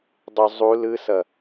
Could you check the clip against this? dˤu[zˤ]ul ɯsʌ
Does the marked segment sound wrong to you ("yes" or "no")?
no